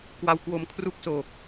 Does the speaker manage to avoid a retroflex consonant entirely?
yes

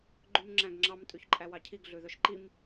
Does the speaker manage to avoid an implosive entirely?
yes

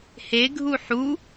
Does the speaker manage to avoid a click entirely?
yes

